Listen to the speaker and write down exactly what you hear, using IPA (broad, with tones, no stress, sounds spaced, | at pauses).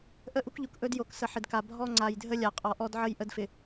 ʔ ə˦ ʔ u˦ k ʎ u˨ k ʔ ɵ˦ d j o˨ k s ə˨ ħ ɪ˨ d k a˨ bʱ ɔ˦ ŋ͡ǀ a˨ j dʱ ə˦ lʲ a˨ qʼ ɔ˨ ʔ ɔ˦ d ʕ ə˦ j ʔ ə˦ d f ɪ˨